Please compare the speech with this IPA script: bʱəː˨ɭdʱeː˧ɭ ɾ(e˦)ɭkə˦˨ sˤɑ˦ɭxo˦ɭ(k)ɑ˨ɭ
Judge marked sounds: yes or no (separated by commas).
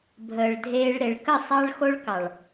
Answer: no, yes